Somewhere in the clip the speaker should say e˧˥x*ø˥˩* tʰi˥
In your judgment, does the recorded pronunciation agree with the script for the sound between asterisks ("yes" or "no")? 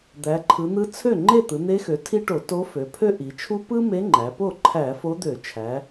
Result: no